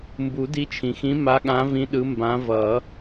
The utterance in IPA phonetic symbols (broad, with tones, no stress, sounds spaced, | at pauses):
m b u˨˩˦ d i˨˦ t͡ʃʰ ĩ˩ x ĩ˨˦ m a˨˦ ɠ ã˨˦ v ĩ˨˦ ɗ ɯ˨˦ m b ã˨˦ v ʌ˨˩˦